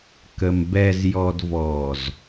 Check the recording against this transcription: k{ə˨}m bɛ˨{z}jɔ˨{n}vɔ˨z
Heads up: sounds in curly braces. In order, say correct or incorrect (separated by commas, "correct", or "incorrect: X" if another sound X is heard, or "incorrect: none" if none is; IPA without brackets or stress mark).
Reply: correct, correct, incorrect: d